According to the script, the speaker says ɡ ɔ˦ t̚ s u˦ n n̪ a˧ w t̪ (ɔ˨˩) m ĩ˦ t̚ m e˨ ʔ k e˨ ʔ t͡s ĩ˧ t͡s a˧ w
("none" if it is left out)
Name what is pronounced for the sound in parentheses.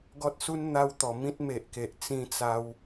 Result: ɔ˨˩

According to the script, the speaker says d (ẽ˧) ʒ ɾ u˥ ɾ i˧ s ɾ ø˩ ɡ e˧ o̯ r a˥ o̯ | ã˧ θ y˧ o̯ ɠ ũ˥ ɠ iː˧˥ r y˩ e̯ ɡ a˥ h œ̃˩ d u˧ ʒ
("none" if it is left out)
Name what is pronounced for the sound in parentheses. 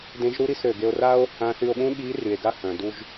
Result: ẽ˧˥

